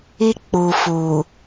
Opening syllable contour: high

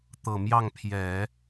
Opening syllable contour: low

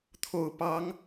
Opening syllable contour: low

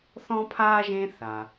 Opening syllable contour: high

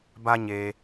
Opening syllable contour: high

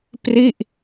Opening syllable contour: falling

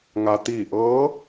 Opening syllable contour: low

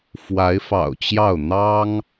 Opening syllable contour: rising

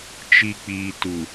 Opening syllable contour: low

